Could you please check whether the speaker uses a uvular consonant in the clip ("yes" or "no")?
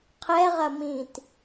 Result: yes